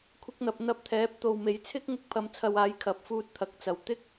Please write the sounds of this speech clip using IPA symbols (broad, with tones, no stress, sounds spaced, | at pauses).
kʷʰ ɪ˧ k̚ n̪ ɐ˨ p̚ n̪ ɐ˧ p̚ t̪ʰ ɛː˨˥ p̚ t̪ o˨ w m e˨˥ j t͡sʰ ɪ˥ k̚ ŋ ʊ˧ k̚ pʰ ɐ˨˧ m t͡sʰ ɐ˨ w aː˨˥ j kʰ ɐ˨ p̚ f uː˧ t̚ t̪ʰ ɐ˨ k̚ t͡s ɐ˨ w t̪ ɪ˥ k̚